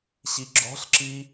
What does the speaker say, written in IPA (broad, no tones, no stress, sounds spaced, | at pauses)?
ɕ i ɡ͡ǁ ɔ̤ ɬ ǁ i